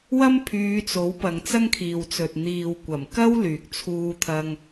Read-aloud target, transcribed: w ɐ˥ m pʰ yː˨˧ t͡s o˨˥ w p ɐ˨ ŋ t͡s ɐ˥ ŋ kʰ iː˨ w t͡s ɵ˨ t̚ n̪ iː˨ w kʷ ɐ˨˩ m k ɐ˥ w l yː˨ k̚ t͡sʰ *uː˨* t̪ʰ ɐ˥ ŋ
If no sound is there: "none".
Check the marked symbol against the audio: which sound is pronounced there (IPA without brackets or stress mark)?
uː˥